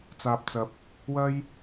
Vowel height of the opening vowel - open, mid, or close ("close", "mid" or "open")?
open